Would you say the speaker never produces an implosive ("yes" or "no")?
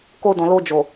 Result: yes